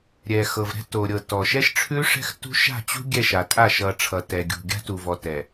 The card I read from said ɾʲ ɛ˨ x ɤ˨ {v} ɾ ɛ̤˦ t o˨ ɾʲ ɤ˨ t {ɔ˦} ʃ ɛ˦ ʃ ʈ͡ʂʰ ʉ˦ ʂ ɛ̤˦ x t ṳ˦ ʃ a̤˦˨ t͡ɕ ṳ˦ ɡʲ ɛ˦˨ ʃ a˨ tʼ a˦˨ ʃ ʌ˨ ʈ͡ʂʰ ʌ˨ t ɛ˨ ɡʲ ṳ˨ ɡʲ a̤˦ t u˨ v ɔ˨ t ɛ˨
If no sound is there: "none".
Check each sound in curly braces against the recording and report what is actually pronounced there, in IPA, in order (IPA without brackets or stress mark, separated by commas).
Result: v, ɔ˨